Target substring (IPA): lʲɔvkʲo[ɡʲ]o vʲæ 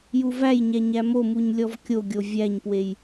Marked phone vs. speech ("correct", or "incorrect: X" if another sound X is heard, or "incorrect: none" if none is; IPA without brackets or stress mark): correct